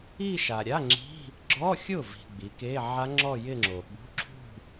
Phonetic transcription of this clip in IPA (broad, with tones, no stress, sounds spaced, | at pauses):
i˥˧ ʃ a˨ ɾʲ a˧˥˧ ŋ͡ǁ i̤˧˥˧ | ɡ͡ǁ ɔ˧˥˧ xʲ ʊ˥˩ v i̤˨ ɡ͡b i˩˥ k e˧˥˧ ʕ a˦˥ ŋ͡ǁ ɔ˥˧ j ɪ˥˧ ŋ͡ǁ o˨ ɓ ṳ˧˥˧ ǁʰ ṳ˥˧